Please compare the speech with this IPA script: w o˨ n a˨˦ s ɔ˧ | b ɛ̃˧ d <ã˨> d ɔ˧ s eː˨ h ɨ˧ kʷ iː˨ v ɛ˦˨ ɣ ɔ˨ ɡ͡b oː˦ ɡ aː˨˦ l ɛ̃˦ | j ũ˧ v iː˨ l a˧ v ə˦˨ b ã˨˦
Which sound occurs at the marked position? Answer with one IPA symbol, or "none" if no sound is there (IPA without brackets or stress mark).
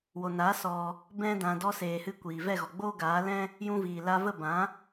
ã˨